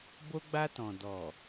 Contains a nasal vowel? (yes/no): yes